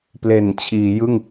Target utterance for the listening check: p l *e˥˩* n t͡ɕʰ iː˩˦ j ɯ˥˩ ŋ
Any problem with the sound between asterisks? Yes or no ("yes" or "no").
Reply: yes